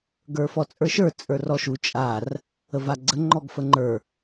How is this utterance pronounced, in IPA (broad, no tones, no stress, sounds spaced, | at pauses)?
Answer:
ɡ ə˞ f ɔ t͡sʼ ə˞ ʃ ə˞ t͡sʼ ə˞ r ɔ ʃ u t͡ʃʼ a r | ə v a ɡ͡ǀ ə ŋ͡ǃ ɔ ɡ f ə ŋ͡ǃ ə˞